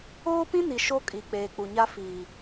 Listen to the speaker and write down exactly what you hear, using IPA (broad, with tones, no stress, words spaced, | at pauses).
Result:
oː˦pĩ˦ni˨ ʃo˦kʼi˨ k͡peː˨k͡pu˨ɲa˦ fiː˨